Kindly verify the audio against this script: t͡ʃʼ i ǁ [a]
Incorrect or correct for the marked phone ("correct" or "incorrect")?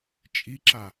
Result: correct